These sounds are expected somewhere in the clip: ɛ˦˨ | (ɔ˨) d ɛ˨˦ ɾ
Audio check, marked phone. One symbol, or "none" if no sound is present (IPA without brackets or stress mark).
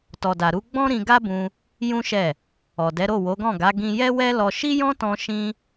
ɔ˨